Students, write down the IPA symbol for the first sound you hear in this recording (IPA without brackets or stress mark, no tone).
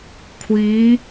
kʷʰ